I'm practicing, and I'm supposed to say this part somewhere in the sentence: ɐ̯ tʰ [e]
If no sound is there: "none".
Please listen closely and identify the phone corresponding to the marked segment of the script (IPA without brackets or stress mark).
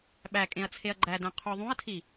i